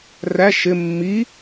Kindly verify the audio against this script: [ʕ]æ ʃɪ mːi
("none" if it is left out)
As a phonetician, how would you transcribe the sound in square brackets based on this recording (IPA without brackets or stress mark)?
r